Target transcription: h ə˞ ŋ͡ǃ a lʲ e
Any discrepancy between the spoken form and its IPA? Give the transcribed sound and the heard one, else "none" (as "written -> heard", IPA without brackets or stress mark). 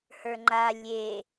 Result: none